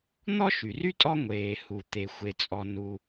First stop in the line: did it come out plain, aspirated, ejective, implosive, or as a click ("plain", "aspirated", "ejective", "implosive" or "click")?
ejective